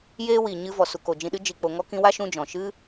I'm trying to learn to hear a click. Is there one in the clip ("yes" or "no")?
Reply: no